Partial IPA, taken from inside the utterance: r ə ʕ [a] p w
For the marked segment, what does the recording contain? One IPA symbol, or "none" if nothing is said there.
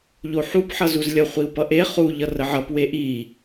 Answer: ʌ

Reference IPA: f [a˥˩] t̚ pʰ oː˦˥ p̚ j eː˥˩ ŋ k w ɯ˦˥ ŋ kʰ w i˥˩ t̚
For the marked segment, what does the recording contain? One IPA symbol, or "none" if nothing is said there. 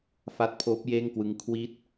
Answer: a˦˥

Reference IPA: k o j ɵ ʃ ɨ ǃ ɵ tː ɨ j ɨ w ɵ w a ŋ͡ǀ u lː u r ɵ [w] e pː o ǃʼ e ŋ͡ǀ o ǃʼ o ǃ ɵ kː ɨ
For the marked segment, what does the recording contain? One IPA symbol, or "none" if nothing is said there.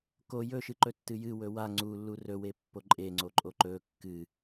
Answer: w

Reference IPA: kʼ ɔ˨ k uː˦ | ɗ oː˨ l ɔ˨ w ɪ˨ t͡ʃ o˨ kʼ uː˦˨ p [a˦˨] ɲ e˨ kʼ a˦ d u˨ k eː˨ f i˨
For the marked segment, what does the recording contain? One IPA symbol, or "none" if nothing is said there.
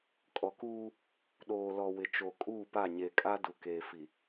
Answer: a˦˨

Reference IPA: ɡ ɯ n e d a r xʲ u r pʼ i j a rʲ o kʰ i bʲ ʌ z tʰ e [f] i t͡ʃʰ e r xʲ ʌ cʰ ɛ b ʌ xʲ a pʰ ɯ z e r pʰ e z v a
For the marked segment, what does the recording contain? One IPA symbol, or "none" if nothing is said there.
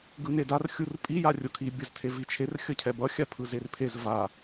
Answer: v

